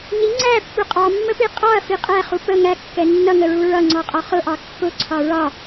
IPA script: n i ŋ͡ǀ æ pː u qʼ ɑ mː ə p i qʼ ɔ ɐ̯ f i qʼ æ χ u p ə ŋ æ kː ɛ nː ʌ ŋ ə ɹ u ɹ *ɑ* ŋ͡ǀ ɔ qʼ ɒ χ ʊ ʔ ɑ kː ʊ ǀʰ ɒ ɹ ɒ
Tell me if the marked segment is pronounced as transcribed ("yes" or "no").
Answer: no